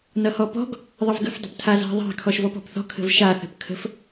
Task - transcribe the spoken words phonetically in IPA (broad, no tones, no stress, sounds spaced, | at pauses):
n ʌ h ɔ p ɔ̤ ɡ | ðˤ ə v ɡ ə̤ f dˤ ə̤ p tʰ a z a̤ ðˤ a̤ kʰ ɔ ʃ v ɔ p ɔ̤ p θ ɔ̤ kʰ ə̤ v ʃ a θ ə̤ p kʰ ə̤ f